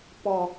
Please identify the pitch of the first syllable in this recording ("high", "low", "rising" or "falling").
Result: low